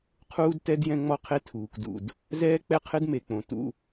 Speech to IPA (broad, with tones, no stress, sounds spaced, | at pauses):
qʰ uː˦ d t ɛ˦ d j ɛ̃˦ ŋ͡m ɔ˦ qʰ e˦ tʰ uː˨ k d ṵ˨ d | z ɛː˦ k͡p ɛ˦ qʰ ɪ˦ d m e˨ k͡p õ˨ t ṵ˦